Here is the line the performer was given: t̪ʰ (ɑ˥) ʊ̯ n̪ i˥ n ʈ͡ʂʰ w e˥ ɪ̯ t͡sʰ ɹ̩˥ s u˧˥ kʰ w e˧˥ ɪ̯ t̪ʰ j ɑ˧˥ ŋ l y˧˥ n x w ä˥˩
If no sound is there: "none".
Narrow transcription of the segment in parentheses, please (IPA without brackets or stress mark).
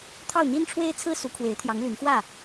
ɑ˥˩